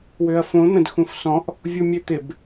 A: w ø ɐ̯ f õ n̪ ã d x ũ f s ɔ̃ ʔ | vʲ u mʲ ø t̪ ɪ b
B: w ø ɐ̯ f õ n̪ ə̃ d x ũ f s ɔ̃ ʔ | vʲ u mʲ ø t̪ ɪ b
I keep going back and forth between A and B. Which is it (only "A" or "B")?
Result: B